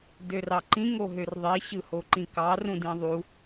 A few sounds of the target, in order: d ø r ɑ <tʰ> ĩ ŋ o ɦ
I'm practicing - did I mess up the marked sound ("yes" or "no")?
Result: yes